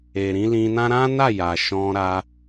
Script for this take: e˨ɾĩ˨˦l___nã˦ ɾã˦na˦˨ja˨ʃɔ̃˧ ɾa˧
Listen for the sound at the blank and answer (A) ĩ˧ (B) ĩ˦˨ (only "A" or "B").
A